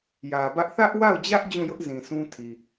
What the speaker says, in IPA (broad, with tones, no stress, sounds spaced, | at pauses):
j ä˨ b ä˦ ʔ θ ä˦ ʔ w a˦˨ ʊ̯ d͡ʑ ä˦ ʔ d͡ʑ ũ˦˨ j ʊ˦ ʔ z ĩ˨ sʰ ũ˦ tʰ i˨